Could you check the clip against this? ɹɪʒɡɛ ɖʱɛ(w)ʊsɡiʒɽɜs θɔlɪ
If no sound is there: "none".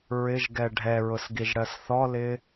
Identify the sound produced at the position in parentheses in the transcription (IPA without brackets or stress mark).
ɹ